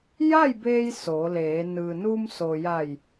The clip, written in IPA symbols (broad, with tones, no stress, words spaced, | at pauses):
ja˥˨jbeː˧j so˩˧leː˩˧ nɯː˩nu˧mso˩ja˧˩j